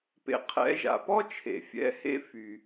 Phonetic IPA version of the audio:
p ḛ˩ qʰ ɛ̰˩˥ ʒ a̰˩ p ɔ˥ t͡ʃʰ ḛ˩ fʲ ɛ̰˩˥ h ḛ˥˩ f y˩

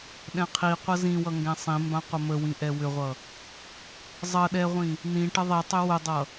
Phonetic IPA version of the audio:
ɗ ɛ̃ qʰ i qʷ ʌ z ĩ w ʌ ŋ ɡ ɛ̃ sˤ ĩ m b ã qʷ ə m ə w ĩ ʔ ɛ w ʏ ʁʷ ʌ | zˤ ʌ ɗ ɛ ʁʷ ĩ | n ĩ ʈ ə ðˤ i tˤ ʏ w ʊ dˤ ʌ

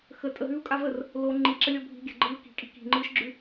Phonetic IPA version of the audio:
x ə tʼ ə ɦ ʉː u̯ kʼ a v ə r | l o ŋ͡ǃ i ǁ ə lʲ ɔ bʱ i̤ ɡʲ a̤ ɡ͡ǃ ɯː k i̤ kʼ i̤ k i̤ ŋ͡ǃ ɯː ʃ ɡ͡ǁ ʉ

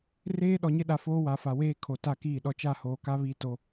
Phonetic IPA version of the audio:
r eː˦ ɗ ɔ˨ ɲ ɪ˦ ɗ a˨ f oː˦ w a˨ f a˨ w eː˦ kʰ o˨ t a˦˨ k iː˦˨ ɗ ɔ˨ t͡ʃ a˦˨ h oː˨ k a˦ β iː˦ t o˦

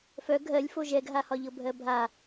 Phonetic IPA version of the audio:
f œ ɡʱ ɜ lʲ f o ʒ ɛ ɡ ɦ a h ɒ ʎ ɤ bʱ ɜ bʱ a

